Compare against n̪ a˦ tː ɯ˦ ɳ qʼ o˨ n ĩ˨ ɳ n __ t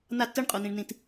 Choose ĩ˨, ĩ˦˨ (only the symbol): ĩ˨